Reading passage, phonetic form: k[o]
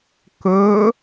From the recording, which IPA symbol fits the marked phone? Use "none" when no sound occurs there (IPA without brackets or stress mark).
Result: ɵ